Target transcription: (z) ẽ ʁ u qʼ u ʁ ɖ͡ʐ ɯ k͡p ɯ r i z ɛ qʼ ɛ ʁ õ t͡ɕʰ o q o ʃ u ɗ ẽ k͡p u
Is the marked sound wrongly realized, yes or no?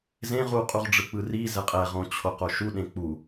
no